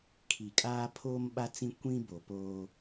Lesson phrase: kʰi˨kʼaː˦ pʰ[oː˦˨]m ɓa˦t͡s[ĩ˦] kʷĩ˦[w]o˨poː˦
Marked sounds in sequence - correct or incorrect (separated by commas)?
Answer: incorrect, correct, incorrect